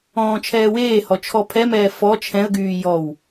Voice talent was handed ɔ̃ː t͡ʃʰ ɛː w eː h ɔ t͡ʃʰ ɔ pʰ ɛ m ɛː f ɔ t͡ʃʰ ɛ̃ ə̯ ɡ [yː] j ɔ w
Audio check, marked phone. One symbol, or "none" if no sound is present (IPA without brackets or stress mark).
yː